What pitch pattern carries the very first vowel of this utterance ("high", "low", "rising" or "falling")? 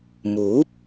rising